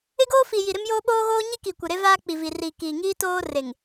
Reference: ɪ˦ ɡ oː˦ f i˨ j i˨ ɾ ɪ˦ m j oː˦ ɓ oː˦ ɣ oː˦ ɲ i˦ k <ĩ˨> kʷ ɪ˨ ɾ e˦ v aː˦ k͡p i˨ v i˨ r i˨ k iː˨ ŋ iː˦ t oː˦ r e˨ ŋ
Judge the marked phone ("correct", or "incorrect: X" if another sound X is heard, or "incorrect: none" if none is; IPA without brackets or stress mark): incorrect: i˨